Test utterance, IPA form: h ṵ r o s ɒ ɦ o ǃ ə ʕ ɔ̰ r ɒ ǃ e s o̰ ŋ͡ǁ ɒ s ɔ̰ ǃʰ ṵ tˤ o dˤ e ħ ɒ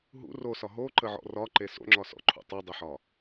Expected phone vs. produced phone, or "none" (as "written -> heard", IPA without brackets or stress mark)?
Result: h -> ɦ